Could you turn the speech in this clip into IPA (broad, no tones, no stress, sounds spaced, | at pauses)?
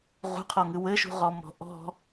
ʁ ṳ qʰ ɔ ŋ ɨ w ɘ ʃ ṳ ʁ ɔ m ɔ̤ ʔ ɔ̤